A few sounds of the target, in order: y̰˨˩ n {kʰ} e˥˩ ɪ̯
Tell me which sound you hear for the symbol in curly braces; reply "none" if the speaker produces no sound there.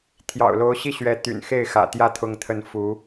x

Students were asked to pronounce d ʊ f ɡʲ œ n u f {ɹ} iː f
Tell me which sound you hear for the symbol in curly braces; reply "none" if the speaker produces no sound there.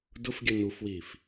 w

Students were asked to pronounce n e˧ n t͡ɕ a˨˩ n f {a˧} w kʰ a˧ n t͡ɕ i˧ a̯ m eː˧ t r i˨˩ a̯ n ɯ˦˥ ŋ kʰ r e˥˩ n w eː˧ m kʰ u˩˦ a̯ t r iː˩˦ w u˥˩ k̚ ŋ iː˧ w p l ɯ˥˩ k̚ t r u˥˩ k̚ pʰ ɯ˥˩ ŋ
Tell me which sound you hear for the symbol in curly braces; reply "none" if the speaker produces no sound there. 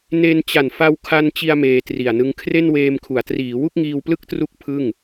a˧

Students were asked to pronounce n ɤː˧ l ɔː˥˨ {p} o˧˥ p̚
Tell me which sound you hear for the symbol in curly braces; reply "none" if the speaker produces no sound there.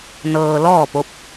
p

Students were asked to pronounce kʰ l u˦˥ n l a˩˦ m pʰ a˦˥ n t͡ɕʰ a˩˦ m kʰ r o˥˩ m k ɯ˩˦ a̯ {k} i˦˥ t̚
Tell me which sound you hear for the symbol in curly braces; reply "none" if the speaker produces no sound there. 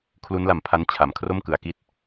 k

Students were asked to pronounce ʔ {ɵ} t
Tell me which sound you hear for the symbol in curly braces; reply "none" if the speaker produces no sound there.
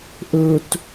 ɵ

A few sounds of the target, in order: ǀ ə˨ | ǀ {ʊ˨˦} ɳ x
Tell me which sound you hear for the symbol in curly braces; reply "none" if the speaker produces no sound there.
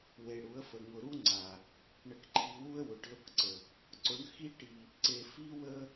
ʊ˨˦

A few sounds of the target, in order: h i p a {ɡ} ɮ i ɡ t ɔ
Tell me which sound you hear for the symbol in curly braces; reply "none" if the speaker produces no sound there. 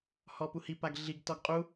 ɡ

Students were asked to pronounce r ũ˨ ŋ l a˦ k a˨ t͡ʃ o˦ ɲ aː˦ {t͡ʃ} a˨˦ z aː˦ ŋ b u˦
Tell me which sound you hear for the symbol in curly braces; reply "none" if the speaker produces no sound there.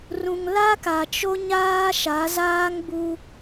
ʃ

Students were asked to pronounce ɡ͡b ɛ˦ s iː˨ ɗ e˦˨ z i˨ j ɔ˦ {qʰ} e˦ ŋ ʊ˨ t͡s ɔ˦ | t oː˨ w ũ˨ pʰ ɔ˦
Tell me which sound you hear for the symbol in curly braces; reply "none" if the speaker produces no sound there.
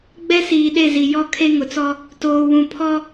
kʰ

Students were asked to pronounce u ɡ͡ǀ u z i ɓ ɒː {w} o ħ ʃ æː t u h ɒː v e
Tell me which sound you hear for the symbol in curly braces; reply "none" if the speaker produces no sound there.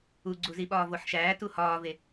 v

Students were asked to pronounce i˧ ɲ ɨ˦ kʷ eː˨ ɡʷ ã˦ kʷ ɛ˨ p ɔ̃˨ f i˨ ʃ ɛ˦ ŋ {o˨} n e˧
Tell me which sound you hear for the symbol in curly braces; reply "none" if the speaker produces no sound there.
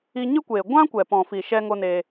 o˦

